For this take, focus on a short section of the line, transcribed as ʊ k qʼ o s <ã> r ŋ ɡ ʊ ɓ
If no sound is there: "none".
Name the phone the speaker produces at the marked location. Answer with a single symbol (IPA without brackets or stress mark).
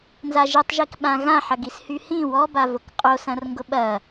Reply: ɐ̃